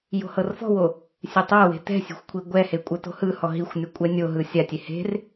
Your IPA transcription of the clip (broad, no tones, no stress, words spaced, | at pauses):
jo̤hɤrfɔ̤wo | sʲetˤawe̤ tɛ̤sʲe̤xʷ kʷʰiɡʷɛhe kʷʼɤto̤hɯhɔ ɦixʷnʲɔ kʷʼɛnʲoɦɯ sʲatʲe he̤r